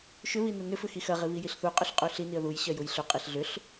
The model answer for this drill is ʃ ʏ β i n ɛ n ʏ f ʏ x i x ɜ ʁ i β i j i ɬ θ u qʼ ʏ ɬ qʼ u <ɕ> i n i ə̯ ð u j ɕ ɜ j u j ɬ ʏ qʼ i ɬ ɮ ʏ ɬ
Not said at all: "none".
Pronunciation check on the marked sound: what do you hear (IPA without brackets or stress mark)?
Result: ɬ